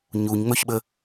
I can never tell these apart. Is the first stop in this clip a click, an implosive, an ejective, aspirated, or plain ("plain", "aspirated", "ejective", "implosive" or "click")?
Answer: implosive